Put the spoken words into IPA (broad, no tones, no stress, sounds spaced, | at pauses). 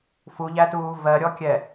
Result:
f u ʎ æ t uː v ɜ ɾʲ ɔ kʲ ɛ